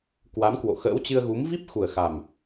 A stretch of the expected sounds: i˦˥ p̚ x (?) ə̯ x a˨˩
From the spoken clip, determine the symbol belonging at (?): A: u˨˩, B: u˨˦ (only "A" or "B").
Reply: A